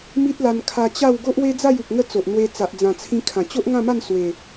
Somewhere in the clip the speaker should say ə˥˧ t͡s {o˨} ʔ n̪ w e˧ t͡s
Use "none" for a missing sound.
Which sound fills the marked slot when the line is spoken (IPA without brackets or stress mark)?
o˨